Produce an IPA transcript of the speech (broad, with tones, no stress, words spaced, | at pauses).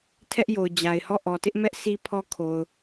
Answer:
tʰɛ˦ʔjo˨ʊ̯ d͡ʑa˨ɪ̯hɔ˦˨ ʔɔ˨tɪ˦ʔmɛ˦ʔ si˦pʰɔ˦kʰo˨ʊ̯